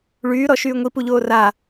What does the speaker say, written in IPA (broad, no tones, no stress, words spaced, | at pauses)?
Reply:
ɭyːɾɔʃyː ŋʷipuʎoː ra